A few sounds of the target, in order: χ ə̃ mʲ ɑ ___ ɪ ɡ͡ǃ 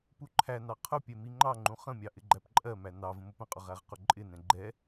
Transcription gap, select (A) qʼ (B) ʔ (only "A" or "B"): B